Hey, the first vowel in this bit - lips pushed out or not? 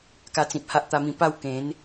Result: no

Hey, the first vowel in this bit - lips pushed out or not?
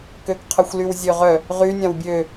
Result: yes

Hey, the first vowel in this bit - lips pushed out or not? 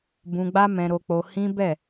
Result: yes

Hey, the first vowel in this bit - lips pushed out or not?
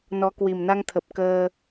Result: yes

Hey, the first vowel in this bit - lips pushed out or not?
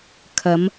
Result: no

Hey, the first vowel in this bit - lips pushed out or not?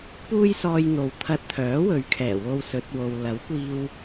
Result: yes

